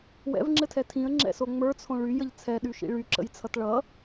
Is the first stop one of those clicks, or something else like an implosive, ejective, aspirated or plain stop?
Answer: click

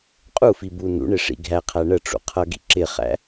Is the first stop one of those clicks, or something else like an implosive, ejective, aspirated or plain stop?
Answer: ejective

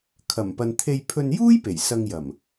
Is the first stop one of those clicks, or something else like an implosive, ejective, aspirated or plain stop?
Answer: aspirated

